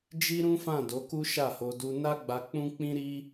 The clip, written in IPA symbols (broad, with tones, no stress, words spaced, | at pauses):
d͡ʒi˦ɾũ˦fã˦˨ do˨˦ku˦ʃa˦˨ho˧ du˧ na˦ɡ͡ba˧ k͡pũ˦k͡pĩ˦ ɾi˦